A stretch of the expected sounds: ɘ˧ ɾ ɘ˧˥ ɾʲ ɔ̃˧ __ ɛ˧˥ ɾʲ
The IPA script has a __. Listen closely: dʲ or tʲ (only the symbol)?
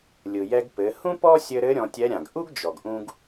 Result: tʲ